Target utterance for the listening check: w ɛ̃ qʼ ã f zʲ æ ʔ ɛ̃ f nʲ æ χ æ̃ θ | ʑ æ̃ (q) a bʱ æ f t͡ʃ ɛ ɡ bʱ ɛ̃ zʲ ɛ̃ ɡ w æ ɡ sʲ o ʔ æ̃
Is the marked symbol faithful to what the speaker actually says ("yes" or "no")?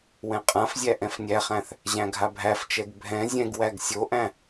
no